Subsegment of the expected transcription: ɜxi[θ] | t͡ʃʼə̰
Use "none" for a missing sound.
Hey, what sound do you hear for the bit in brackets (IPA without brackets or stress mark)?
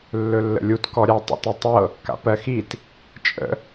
t